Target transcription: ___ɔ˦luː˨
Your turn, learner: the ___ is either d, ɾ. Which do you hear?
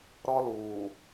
ɾ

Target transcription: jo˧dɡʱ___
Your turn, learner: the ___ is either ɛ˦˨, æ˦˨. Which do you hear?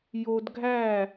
æ˦˨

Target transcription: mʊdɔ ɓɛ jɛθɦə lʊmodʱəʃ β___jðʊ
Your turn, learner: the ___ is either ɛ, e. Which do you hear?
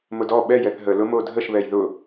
ɛ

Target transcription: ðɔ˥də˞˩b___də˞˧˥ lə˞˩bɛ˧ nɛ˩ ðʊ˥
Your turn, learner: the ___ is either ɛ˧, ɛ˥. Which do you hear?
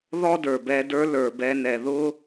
ɛ˧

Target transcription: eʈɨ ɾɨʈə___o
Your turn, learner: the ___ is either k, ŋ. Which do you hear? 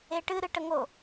ŋ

